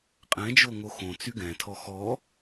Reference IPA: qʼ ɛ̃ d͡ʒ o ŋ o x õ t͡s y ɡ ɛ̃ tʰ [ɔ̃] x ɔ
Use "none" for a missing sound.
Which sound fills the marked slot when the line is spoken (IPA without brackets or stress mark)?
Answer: ɔ